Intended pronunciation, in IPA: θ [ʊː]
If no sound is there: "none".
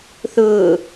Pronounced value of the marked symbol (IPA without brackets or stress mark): ʊː